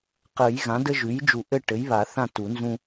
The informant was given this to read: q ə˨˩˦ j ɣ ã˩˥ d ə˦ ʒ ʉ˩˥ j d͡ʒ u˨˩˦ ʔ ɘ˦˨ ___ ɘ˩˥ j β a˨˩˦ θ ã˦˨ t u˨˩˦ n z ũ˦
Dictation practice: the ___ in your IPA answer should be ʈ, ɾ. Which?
ʈ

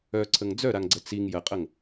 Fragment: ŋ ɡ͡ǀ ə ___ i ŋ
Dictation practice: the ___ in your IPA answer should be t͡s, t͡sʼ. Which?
t͡s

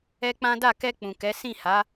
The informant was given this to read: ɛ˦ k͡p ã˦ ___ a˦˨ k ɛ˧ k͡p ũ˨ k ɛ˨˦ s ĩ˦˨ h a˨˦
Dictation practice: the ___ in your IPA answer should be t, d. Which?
d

